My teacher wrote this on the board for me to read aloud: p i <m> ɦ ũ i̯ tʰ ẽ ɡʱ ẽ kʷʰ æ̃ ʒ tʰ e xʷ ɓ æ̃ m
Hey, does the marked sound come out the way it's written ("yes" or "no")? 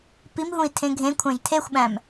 yes